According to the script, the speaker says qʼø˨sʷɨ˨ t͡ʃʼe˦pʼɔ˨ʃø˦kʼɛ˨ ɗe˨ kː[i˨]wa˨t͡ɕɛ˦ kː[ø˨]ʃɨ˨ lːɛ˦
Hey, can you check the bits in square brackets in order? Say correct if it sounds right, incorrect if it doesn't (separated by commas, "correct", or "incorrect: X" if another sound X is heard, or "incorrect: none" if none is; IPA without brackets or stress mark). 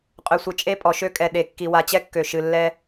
correct, correct